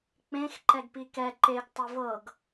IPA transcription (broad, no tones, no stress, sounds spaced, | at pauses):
k͡p ẽ x ǃ ɛ ɡ p i k ɛ ǃ e ɡ tˤ ə v ɤ ɡ